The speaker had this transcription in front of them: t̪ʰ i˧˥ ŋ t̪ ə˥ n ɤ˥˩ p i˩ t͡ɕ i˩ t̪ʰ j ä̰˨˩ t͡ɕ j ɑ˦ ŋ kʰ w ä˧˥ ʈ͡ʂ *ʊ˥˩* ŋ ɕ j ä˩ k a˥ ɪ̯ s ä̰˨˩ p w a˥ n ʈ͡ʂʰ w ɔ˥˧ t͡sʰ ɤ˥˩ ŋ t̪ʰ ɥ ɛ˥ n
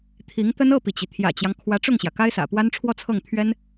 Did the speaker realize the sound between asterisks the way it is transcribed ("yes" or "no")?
yes